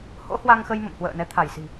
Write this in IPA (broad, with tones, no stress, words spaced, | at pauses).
ho̰˧˥hwa˧ŋxə˧j mə̰˧˨mhwə̰ː˧˨nɛ˨˦ t̪ʰa˧˩jsi̤˨˩